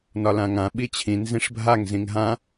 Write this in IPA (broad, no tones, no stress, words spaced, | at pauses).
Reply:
nɒlãŋã ɓit͡ɕʰĩ nzĩʂbʱaŋ zĩŋɦã